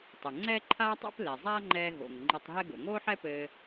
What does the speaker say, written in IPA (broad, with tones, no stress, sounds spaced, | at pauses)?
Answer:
tˤ ɘ˩ ŋ͡ǀ ɛː˥ ǃʰ aː˥ tˤ o̰˥ p l ɛ˩ zˤ aː˥ ŋ͡ǃ ɛː˧ ɣ o̰˩ ŋ ŋ͡ǃ ɘ˧ tˤ ɦ ɛ˥ ɡ o̰˩ ŋ oː˥ ħ ɛ˥ p ɘː˧